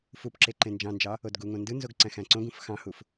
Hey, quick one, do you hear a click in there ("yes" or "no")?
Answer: yes